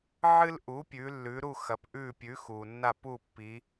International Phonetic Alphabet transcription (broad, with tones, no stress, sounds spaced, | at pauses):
ʕ ɨ˦ l ʔ u˩˥ pʲ ʉ˩˧ lː ʉ˩˧ ɾ u˦˨ x ɐ˩˧ p ʔ ʉ˦˨ pʲ ʉ˩˥ x u˩ nː a˦˨ p u˦˨ pː i˩˧